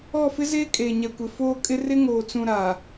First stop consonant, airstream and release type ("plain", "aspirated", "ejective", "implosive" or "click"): ejective